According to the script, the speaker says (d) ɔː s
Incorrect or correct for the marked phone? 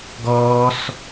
incorrect: ɡ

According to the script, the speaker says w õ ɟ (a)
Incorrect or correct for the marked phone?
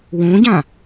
incorrect: ã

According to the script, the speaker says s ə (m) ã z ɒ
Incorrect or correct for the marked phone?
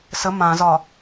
correct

